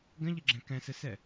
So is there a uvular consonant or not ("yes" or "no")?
no